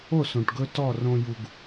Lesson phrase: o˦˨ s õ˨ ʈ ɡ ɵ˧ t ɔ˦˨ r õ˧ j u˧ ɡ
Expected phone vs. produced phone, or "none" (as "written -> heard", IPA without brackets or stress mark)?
none